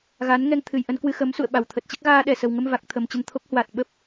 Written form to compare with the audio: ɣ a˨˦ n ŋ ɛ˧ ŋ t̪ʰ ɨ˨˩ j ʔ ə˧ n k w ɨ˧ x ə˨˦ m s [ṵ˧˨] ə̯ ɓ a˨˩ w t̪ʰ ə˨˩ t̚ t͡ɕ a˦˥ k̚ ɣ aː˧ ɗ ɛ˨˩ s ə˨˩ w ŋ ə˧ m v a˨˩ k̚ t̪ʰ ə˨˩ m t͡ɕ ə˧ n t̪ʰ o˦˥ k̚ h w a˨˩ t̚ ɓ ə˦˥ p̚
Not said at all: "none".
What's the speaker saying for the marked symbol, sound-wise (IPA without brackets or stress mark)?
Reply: ṵ˧˨